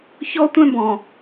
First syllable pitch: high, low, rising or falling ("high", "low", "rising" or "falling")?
high